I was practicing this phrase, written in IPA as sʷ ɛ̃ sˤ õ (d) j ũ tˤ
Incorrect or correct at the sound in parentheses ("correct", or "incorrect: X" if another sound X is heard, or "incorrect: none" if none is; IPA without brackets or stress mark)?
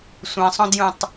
correct